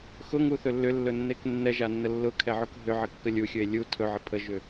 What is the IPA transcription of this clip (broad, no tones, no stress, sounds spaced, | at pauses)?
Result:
x ʊ ŋ u θ ɵ lː ʏ lː ɵ nː e k nː ɛ ʒ a nː ə lː ʊ kʰ ɛ ʕ ʊ k ɦ ʏ ʕ ə kː ə lʲ u xʲ ɵ e̯ lʲ u tʰ ɵ ʕ ə pʰ ə ʒ ʏ